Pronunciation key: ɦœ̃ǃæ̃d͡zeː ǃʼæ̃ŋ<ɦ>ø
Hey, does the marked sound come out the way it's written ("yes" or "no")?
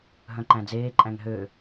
yes